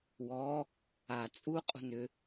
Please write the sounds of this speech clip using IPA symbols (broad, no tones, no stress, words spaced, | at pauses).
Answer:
wɔ | a t͡sʼu qʼṳnʏ